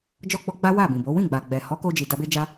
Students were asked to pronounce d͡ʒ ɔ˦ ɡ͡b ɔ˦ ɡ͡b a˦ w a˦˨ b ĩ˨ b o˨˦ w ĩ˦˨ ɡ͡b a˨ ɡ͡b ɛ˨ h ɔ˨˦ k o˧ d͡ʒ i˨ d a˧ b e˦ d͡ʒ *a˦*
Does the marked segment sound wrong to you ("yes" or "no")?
no